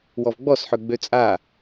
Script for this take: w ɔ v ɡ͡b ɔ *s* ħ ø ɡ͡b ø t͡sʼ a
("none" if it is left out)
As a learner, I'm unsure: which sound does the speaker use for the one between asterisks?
s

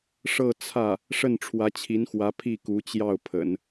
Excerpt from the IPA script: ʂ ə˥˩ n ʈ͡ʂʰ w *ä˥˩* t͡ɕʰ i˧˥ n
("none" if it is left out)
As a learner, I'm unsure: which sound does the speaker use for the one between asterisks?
ä˧˥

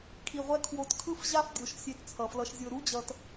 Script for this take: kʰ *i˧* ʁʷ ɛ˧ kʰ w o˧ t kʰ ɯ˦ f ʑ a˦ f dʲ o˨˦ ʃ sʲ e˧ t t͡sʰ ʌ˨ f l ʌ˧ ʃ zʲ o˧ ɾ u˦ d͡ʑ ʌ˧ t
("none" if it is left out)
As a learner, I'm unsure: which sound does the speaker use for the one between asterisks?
i˨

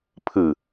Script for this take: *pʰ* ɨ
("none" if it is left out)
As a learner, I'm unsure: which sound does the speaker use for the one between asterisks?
pʰ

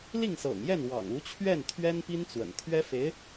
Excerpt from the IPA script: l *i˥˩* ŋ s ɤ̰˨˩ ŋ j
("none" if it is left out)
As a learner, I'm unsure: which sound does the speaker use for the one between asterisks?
i˥˩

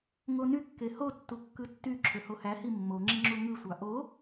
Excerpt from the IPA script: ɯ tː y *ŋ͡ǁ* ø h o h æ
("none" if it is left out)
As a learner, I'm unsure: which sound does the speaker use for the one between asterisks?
ǁʰ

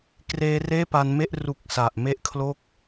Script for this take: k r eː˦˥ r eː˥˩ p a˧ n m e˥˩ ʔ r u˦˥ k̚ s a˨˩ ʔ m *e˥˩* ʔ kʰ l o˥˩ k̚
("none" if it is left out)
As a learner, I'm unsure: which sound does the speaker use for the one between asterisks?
e˥˩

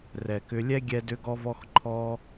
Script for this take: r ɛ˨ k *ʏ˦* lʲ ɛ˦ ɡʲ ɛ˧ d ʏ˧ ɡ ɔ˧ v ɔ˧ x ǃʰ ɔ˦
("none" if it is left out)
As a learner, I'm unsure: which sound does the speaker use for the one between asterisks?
ʏ˧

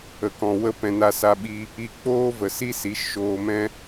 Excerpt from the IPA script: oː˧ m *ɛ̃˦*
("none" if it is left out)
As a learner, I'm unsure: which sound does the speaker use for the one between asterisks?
ɛ̃˦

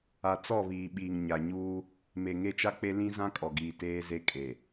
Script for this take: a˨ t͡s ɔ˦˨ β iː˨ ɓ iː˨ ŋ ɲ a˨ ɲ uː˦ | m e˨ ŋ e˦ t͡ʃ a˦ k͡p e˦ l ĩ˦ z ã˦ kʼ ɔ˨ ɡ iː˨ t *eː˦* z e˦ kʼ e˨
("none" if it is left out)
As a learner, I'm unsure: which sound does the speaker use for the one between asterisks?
eː˦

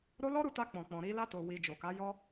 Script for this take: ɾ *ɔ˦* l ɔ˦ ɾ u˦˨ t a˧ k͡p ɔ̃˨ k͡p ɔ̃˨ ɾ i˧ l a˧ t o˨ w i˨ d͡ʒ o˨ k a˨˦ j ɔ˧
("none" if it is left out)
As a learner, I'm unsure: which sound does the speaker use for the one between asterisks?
o˦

